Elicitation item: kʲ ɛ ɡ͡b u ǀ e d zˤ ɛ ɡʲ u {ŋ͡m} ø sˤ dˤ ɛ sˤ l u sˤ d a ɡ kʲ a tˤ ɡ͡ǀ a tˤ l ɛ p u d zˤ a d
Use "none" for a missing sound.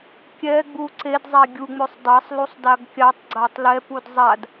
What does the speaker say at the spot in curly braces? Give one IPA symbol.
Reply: ŋ͡m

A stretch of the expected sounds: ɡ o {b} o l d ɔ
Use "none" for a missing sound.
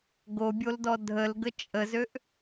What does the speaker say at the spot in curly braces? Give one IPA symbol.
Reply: bʲ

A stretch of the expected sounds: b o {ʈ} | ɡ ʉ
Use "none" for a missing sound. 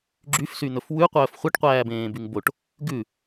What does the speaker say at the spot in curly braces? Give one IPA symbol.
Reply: ʈ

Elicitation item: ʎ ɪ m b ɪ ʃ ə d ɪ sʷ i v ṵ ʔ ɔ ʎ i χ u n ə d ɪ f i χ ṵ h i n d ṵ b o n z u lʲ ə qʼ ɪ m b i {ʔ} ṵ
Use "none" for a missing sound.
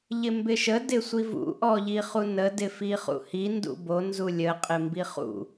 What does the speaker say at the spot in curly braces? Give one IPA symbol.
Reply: χ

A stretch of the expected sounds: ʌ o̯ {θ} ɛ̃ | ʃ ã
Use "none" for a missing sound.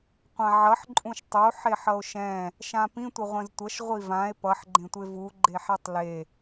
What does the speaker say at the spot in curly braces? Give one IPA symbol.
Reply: ʃ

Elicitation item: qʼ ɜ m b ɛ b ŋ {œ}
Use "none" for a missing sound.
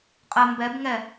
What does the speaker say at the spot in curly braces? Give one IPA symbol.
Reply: ɛ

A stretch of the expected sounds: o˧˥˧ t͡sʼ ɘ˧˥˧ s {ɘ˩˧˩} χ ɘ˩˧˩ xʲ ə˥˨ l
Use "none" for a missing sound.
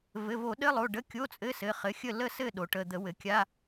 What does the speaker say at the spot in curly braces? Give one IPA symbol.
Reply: ɘ˩˧˩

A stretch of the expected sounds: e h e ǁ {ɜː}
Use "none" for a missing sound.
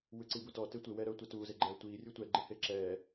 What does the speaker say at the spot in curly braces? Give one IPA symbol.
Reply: ɛː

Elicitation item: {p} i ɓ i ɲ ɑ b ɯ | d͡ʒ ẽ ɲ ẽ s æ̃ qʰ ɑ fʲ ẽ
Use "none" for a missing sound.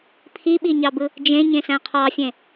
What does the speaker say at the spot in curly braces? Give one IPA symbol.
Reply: pʰ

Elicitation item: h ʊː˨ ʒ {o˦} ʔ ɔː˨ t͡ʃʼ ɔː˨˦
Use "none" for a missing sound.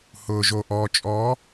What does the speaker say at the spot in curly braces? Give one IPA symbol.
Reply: o˨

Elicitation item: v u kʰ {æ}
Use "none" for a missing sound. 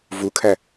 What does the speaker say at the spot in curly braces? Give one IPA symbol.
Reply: æ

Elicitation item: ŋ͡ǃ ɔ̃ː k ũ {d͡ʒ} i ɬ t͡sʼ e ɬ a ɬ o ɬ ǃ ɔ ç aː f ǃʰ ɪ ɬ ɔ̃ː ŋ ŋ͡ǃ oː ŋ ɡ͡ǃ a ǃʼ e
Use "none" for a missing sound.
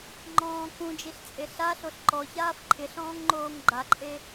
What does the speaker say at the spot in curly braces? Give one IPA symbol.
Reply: d͡ʒ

